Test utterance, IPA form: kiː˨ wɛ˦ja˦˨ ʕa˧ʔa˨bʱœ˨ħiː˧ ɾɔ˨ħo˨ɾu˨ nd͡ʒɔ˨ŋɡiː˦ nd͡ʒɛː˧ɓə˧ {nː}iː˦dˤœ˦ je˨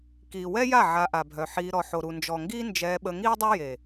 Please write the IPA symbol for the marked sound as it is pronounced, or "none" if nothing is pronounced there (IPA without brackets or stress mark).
ŋ